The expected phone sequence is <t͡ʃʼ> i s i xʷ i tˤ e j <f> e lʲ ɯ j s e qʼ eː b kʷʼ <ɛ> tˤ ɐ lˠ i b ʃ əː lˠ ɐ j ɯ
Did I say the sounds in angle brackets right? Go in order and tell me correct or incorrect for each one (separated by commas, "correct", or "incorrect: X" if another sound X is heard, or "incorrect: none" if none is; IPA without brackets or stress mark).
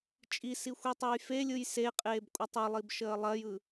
correct, correct, correct